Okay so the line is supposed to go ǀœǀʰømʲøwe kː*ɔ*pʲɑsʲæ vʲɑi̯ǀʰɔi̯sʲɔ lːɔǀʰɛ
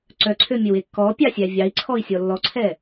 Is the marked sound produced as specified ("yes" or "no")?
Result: yes